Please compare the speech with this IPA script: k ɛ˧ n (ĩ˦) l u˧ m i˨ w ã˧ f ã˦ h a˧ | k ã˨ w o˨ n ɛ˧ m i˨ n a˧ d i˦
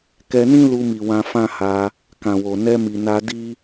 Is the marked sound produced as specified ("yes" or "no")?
yes